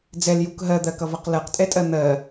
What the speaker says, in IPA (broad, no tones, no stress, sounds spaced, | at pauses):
d͡z ɛ l j u k ɦ ɜ d̪ ɜ k ʌ v ʌ q l ɜ q tʼ ɛ tʼ ɜ n̪ ɜ